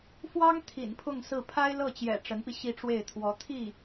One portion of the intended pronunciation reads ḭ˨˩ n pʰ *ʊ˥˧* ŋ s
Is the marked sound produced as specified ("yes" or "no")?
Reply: yes